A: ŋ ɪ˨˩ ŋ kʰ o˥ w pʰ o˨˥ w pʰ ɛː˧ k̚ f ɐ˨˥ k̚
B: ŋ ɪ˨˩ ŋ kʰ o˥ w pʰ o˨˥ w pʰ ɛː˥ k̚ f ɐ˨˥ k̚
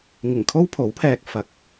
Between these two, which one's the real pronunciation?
A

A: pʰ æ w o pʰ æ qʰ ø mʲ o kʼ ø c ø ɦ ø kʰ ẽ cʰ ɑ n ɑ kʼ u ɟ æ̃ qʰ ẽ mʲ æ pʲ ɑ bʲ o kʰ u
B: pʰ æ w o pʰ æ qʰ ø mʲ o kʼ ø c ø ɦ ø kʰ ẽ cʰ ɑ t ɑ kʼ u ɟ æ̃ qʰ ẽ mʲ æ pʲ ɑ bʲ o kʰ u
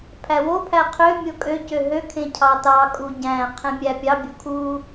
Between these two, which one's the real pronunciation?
B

